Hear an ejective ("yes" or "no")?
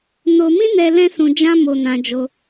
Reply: no